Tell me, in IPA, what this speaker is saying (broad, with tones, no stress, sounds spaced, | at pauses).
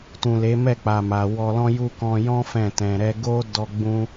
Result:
t ũ˨ l e˨˦ m ɛ˦˨ k͡p a˨ m a˨ w ɔ˧ l ɔ̃˦ j u˦ k ɔ̃˧ j ɔ̃˦ f ɛ̃˦˨ t ɛ̃˧ ɾ ɛ˧ ɡ o˦ d ɔ˦ ɡ͡b ũ˦